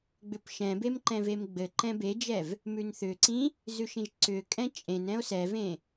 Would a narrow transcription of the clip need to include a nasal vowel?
yes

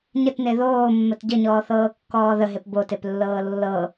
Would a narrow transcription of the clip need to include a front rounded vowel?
no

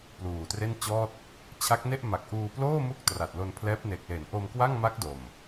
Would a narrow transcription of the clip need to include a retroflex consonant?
no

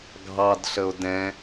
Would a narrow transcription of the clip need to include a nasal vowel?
yes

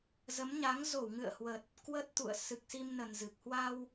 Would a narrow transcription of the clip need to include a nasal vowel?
no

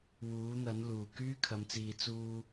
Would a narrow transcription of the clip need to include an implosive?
no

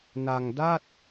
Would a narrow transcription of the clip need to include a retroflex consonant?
no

